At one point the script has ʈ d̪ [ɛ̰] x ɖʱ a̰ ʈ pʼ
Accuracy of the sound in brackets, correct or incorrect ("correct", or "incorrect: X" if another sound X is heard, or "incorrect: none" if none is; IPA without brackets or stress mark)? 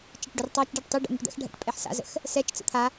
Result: correct